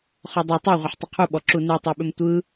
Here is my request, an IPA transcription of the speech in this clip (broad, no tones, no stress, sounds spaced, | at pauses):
χ ɔ dˤ o tˤ e ʁʷ ʌ ħ tˤ ɯ qʰ u ɓ ɔ ǁ u n ɯ tˤ e ɓ ʏ m tʷ ɯ